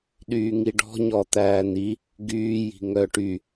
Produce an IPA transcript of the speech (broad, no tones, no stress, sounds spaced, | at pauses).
ɗ yː ŋ i ɖ ɔ̤ ɲ ɔ t̪ æː n i | ɡ yː j i̤ ŋ œ ʈ y